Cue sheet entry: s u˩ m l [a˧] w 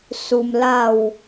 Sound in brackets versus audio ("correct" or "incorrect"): incorrect